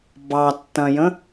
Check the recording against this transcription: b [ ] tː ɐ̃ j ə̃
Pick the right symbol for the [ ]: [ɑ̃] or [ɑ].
ɑ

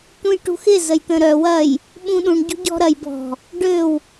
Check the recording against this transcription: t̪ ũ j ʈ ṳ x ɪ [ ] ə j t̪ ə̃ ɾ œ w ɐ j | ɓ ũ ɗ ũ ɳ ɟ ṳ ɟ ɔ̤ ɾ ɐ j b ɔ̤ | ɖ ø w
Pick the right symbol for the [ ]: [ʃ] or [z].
z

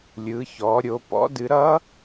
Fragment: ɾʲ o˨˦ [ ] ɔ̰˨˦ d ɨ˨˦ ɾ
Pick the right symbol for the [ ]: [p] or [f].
p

